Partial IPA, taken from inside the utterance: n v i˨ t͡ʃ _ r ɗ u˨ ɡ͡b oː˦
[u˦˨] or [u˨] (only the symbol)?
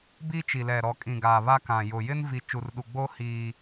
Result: u˨